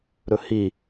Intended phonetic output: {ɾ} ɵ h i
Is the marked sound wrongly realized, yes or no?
no